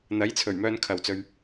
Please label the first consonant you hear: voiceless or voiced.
voiced